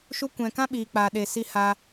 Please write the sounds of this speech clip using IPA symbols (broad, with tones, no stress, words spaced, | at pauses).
ʃu˧kʷɛ̃˨kã˦ ɓiː˨k͡paː˨ɗe˨si˧ haː˧